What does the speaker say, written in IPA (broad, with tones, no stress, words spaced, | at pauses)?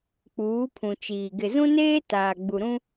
k͡puː˨˦pʰũ˨t͡ʃiː˨ ɡɪ˨zũ˦neː˦ taː˨ɡ͡bu˨ɾũ˦